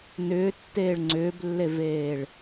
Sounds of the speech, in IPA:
n ʏː tː eː ɭ ŋ͡ǀ ʏː b lː e v eː ɭ

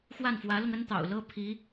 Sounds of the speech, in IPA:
x w a˥˩ n f w ä˧˥ l ʊ˧ ŋ ə˥ n t̪ ɑ̰˨˩ ʊ̯ l ɤ˥ pʰ i˧˥

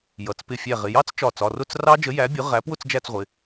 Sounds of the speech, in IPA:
j ʌ˩˧˩ t͡s p ɪ˧˩ fʲ æ˧˩ ʁ ɪ˩˧˩ j ɑ˦˥ t͡s t͡ʃ ɒ˧˩ t͡s ɒ˩˧˩ r ʊ˥˧ t͡s r ɑ˦˥ d͡ʒ ə˨˥ j æ˨˥ bʲ ʊ˨˥ ʁ æ˨˥ p w ʊ˥˧ t͡s d͡ʒ æ˥˧ t͡s ʁʷ ɪ˩˧˩

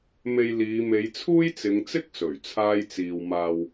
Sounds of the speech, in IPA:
m e˨ j l iː˨˧ m e˨˧ j t͡sʰ uː˥ j t͡s ɪ˨˧ ŋ t͡s ɪ˥ k̚ s ɵ˨˩ ɥ t͡sʰ aː˧ j t͡s iː˨ w m aː˨ w

